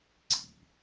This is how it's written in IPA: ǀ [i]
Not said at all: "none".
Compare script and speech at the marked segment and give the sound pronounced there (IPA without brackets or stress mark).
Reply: ḭ